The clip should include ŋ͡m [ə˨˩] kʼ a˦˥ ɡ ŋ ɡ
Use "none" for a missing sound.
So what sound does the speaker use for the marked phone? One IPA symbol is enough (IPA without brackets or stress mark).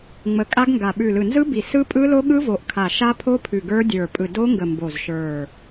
ə˨˩